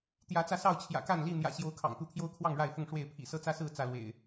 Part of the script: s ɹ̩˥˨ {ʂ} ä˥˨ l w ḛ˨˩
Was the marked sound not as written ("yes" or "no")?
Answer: yes